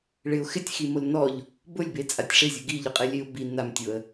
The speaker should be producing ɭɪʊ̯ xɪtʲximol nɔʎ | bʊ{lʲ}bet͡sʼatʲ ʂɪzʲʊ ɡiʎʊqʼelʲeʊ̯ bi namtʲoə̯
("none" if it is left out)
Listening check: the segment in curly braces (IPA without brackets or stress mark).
lʲ